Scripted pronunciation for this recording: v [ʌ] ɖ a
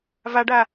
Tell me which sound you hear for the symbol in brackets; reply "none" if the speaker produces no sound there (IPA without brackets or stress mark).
a